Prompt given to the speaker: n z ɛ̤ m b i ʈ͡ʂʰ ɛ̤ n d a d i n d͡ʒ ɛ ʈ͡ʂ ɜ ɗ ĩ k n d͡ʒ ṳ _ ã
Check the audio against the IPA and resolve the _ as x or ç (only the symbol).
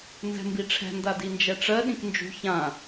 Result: ç